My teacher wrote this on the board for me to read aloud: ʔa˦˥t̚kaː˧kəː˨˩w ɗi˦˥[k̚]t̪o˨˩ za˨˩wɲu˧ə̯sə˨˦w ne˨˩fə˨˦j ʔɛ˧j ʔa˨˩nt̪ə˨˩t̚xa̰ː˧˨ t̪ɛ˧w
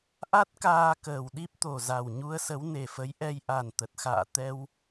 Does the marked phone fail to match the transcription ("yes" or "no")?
yes